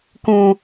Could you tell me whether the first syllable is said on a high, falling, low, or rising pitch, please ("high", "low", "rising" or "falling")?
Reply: high